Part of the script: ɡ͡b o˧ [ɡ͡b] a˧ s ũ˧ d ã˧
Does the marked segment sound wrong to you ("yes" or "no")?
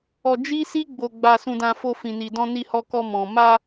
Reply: no